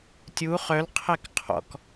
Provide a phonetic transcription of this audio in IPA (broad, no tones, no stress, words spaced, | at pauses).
tʲu χœlqʰɛk qʰɔ̰k